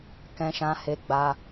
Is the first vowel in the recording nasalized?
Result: yes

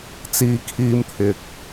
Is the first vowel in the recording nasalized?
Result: no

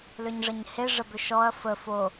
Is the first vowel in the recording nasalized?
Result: no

